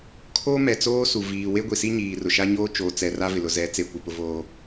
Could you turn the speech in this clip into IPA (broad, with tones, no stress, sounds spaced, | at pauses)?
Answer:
kʰ oː˦ m ɛ˨ t͡s oː˦ s u˨ v iː˨ w e˦ ɡʷ i˨ s i˦ ɲ iː˨ r ʊ˨ ʃ a˦ ɲ oː˦ t͡ʃ oː˨ t͡s ɛ˨ r a˦ v ɪ˨ l ʊ˨ z ɛ˨˦ t͡s e˨ kʷ ɪ˨ p ʊ˦ v oː˦